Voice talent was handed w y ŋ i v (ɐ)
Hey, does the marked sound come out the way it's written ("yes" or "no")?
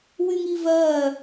no